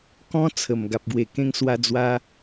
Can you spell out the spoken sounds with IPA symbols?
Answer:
k ɔ̃˧ t͡sʰ ə˨˩ m ɡ a˨ p̚ ɡ w e˨˩ k ẽ˧ ŋ s w a˧ d͡z w a˧

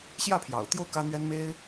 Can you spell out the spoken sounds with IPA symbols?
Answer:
ɕ j ä˥˩ pʰ j ɑ̰˨˩ ʊ̯ t̪ j o˥˩ ʊ̯ k ä˥ n̪ ɥ ɛ˥ n m e˥ ɪ̯

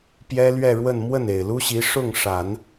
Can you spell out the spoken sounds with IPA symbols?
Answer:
p j ɛ˥ l ɥ ɛ˥˧ ɻ w ə˥˧ n m w ə˥˩ n e˨˩ ɪ̯ l u˥ ɕ i˧˥ ʂ ʊ˥˩ ŋ ʂ a˨˩˦ n

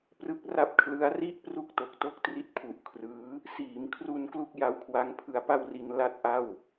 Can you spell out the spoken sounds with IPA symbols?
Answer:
p r ɯ˦˥ k̚ r a˦˥ p̚ kʰ l ɯ˦˥ a̯ r i˥˩ ʔ p r u˥˩ k̚ t o˨˩ k̚ t o˥˩ k̚ t r i˦˥ t̚ pʰ u˨˩ ʔ kʰ r ɯː˦˥ | s iː˩˦ m kʰ r u˧ n k l u˥˩ k̚ j a˦˥ w kʰ w a˦˥ ŋ pʰ ɯ˧ a̯ p a˥˩ w r i˧ n l a˥˩ t̚ ʔ a˥˩ w

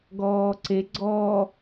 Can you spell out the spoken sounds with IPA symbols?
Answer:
ɡ ɔː ǀ e ɡ͡ǀ ɔ

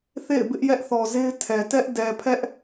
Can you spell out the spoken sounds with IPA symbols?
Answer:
θ ḛ˦˨ ɪ̯ b ɪ˦ ʔ j ɛ˦ ʔ θ ɔ˨ z e˦ ɪ̯ tʰ ɛ˨ t ɛ˦ ʔ d ɛ˨ pʰ ɛ˦ ʔ

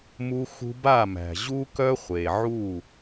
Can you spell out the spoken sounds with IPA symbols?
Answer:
m u˧ x ṳ˧ b a˦˨ m æ̤˨ ʑ u˦ k œ˦ χʷ e˨ ʕ u˦˨

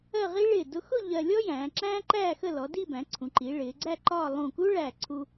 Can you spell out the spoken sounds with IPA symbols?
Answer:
ɜ˥˧ ʁ i˥ ɭ ɪː˧˩ d ʊ˧ x ʊ˥˧ ʎ ɜ˧ lʲ ɔ˥ j æ̃ː˩˧ ǁ æ̃ː˥ ǃ æː˥˧ x ə˥˧ l ɔ˩˧ d i˥˧ b æ̃˩˧ ǀʰ ũ˩˧ ǃ i˩˧ ɭ ɪː˩˧ ɡ͡ǀ æ˥˧ ǃ ɒ˥˧ lˠ ũ˧˩ k u˥ ɭ æ˧˩ ǀʰ u˧

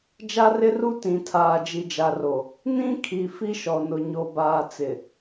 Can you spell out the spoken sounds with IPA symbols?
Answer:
d͡ʒ a˦ r ɪ˦ r u˦ t ĩ˨ tʰ aː˨ d͡ʒ i˨ d͡ʒ a˨ r o˨ | n ĩ˦ kʰ i˨ f i˦ ʃ ɔ˨ n ʊ˨ ɲ o˨ b aː˨ t͡s ɪ˨

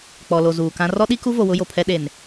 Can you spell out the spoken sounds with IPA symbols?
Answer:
k͡p ɔ˨ l o˨ z uː˨ k ã˦ r ɔ˦ ɗ i˦ k u˦ v o˨ w ʊ˦ j o˨ pʰ ɛ˦ ɗ e˨ n

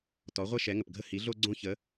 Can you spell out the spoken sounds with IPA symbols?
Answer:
t ɔ˧˥ ʁʷ ɛ˥ ʃ ɛ˧˥ ŋ ə˧ p ɡʱ ə˥ h i˧˥ ɮ o˥ ɡ͡ǀ õ˥ ç ə˧˥

